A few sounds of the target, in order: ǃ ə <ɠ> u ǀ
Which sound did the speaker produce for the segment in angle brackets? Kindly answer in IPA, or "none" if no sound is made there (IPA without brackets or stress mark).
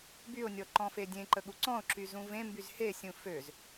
ɠ